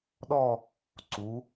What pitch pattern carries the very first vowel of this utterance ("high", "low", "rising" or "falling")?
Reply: falling